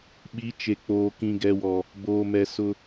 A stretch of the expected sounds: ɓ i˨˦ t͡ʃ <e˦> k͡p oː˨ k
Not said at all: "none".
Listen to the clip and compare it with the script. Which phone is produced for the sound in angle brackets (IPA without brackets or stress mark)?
e˨